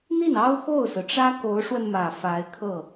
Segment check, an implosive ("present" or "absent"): absent